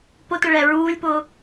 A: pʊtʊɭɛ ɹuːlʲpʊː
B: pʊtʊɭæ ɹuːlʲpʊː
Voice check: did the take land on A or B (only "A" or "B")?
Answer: A